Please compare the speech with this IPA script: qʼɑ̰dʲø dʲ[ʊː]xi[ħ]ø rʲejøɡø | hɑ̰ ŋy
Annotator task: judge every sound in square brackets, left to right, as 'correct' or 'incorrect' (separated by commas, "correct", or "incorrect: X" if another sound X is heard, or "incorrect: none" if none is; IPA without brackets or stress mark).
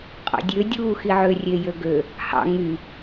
incorrect: uː, incorrect: ʕ